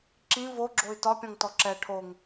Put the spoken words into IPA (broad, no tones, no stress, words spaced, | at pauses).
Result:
ǁĩ voɡ͡ǁoy̯ tɒpʲɔ̃ŋtɔ ǁɛ ʈʰoŋ